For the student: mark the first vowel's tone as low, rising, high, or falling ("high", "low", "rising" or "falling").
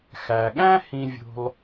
low